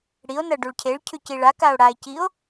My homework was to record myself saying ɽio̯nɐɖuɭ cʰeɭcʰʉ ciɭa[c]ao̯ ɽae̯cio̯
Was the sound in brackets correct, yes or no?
no